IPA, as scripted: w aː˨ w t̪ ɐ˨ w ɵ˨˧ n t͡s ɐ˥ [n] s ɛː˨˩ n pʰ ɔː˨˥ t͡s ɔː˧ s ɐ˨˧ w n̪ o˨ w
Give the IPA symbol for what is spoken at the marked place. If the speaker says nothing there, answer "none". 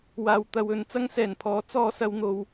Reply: ŋ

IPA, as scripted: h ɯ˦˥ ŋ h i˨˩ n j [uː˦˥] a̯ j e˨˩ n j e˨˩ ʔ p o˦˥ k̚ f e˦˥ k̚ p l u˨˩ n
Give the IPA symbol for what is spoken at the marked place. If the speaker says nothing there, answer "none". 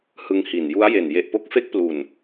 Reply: u˦˥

